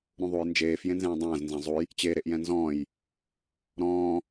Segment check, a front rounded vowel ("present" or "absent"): absent